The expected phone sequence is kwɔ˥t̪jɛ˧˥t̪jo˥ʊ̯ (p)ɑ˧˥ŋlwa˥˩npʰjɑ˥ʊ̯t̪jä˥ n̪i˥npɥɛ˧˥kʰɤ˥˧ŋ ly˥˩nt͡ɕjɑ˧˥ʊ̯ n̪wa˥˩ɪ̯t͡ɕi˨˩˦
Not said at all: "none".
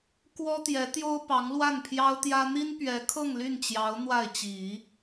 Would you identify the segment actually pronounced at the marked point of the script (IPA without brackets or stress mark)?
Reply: p